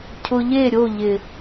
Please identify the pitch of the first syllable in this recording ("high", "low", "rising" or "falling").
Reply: low